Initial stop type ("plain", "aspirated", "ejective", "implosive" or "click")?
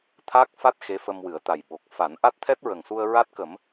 aspirated